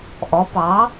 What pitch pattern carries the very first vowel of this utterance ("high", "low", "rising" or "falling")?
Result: rising